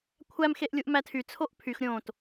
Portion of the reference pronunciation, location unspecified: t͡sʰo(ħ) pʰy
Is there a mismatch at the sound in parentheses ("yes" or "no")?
yes